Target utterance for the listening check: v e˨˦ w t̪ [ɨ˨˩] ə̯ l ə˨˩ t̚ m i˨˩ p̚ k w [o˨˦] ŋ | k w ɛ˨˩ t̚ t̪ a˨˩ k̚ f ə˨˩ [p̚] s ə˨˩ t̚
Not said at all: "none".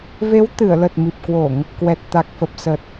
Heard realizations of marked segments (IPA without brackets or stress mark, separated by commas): ɨ˧˩, o˧˩˨, p̚